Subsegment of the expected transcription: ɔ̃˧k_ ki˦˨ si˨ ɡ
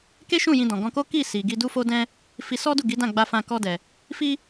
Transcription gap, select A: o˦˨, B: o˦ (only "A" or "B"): B